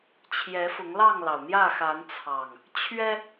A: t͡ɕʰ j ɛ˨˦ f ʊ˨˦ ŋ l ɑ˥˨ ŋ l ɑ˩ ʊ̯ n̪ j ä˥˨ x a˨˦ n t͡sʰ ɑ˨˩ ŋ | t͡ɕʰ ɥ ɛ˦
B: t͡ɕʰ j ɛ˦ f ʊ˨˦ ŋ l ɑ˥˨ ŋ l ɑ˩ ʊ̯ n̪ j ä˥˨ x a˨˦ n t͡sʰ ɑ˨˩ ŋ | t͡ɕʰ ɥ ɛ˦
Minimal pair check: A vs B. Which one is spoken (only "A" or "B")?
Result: A